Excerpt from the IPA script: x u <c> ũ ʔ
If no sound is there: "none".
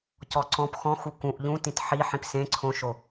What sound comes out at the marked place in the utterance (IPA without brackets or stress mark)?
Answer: k